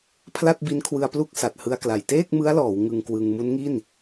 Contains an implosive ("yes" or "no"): no